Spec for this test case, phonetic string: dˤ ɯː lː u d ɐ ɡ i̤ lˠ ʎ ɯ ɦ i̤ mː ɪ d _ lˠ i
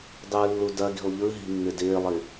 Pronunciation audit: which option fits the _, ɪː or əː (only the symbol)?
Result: ɪː